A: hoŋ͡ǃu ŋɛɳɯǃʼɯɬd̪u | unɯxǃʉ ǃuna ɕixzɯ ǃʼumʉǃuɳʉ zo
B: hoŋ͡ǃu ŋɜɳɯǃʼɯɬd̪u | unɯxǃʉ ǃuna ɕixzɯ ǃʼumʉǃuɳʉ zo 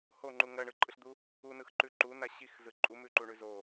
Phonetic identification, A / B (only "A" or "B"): B